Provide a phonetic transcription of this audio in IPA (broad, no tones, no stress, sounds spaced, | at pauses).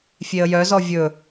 fʲ e ə̯ j œ z ɔ vʲ ɵ